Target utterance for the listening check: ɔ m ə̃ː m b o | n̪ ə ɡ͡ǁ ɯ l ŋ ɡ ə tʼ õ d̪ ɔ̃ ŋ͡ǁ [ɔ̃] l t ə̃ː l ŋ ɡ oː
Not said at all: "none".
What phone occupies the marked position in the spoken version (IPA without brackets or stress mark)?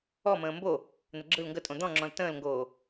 ɔ̃